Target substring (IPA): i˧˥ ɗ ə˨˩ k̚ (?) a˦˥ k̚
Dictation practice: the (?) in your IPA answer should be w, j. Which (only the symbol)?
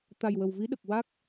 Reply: w